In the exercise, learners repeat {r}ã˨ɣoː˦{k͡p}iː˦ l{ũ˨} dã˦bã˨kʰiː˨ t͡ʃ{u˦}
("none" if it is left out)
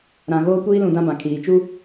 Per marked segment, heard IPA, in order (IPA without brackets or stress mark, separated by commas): ɾ, kʷ, ũ˨, u˦